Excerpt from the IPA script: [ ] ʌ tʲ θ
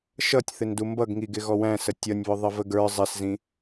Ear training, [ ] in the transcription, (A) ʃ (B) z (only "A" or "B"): A